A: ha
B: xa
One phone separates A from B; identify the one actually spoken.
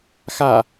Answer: B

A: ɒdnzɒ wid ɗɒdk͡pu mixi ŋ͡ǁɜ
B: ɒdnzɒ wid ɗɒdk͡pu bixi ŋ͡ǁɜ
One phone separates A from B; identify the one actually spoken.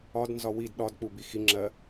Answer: B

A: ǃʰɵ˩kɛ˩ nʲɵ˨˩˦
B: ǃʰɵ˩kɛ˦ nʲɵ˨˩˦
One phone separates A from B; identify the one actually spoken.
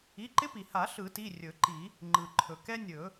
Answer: B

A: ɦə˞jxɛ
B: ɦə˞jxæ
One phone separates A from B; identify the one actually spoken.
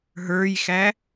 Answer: B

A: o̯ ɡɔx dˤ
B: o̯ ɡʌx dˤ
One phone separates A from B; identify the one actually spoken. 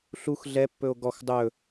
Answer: A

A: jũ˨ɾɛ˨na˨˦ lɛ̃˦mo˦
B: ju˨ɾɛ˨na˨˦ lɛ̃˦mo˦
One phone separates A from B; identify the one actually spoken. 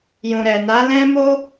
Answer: A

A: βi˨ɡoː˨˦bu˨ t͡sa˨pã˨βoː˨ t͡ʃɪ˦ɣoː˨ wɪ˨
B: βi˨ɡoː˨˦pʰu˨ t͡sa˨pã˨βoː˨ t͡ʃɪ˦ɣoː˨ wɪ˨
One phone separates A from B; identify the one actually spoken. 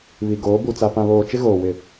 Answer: A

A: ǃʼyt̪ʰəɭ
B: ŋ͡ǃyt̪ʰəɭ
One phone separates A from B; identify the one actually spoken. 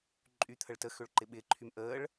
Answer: A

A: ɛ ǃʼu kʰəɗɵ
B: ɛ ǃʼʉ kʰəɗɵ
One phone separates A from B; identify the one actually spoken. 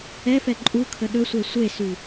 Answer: A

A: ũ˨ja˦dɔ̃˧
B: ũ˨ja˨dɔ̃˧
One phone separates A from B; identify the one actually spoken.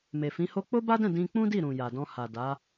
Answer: B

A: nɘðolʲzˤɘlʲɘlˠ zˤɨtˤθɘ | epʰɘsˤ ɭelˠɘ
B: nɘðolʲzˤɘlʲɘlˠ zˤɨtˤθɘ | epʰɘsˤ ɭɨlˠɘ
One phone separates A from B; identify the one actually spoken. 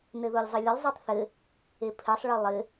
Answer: B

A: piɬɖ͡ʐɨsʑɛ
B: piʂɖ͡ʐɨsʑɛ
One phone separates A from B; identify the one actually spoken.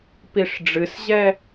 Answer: B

